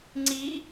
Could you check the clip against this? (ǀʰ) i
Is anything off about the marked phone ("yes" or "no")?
yes